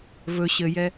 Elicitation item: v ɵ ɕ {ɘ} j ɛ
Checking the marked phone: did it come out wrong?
no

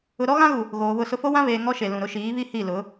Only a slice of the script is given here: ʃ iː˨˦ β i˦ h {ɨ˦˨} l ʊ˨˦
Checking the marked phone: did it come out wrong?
yes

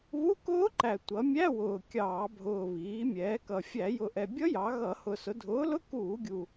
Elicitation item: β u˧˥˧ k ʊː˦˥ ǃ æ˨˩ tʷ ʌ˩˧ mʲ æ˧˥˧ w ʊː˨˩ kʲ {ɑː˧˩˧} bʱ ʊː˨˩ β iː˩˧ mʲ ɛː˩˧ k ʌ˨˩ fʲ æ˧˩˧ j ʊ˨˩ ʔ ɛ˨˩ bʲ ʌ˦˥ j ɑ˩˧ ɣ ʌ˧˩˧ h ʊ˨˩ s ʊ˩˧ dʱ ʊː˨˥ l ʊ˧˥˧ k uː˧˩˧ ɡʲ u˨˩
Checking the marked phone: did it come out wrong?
no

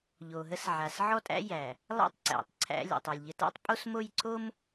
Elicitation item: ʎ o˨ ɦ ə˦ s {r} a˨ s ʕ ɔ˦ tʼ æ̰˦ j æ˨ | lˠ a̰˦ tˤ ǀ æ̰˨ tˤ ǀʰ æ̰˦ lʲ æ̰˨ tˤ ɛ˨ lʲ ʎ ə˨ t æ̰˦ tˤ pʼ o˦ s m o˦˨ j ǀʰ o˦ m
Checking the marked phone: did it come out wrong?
yes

